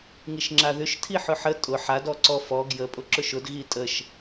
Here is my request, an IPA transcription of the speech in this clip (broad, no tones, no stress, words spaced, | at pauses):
ŋiʃŋ͡ǁaðʏʃtʰi ħʊħə tʼʊ ħad ɔǀɔfɔ ɡjə pʼʊǁʊʃʊd ɣitʼəʃ